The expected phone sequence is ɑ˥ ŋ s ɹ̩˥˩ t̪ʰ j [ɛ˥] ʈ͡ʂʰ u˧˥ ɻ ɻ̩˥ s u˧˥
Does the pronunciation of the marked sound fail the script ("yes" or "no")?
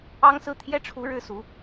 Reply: no